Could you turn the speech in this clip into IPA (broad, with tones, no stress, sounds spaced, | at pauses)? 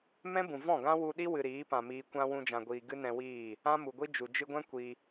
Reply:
m ɛ̃˦ b ũ˨ v ɔ̃˦˨ ɡ ã˦ w u˧ ɗ i˦ w ɨ˨ ɾ iː˨˦ p ã˨ m iː˨ kʷ ã˧ w ũ˧ d͡ʒ ã˨ ɡʷ iː˨ ɡ ɨ˦ n ɛ̃˧ w iː˦˨ | ã˦ m u˨ ɡʷ i˦ d͡ʒ u˨ d͡ʒ ɨ˧ ɡʷ ɛ̃˦ kʷ i˧